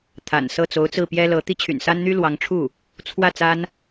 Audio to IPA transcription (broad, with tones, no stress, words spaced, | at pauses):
t̪ʰa̰˨˩nsɤ˥˩ t͡so˧˥ʊ̯t͡sɹ̩˥˩pjɛ˥lɤ˧˥ t̪i˥t͡ɕʰy̰˨˩nsa˥nn̪y˥ lwɑ˧˥ŋʈ͡ʂʰu˥˩ | t͡sʰwä˥˩ t͡sa˥n